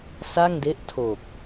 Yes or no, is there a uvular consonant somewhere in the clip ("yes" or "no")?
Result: no